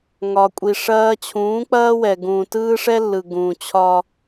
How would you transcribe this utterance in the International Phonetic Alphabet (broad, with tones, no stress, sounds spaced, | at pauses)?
ŋ ɒ˨ kʷʼ i˨ ʂ ɐː˦ t͡ɕʰ ũː˨˦ k͡p ɐː˦ w ɛ˨ ɡ ũː˨ t ɯː˦ ʂ ɛ˦ lː ɯ˨ ɡ ũː˨ t͡ɕʰ ɒː˦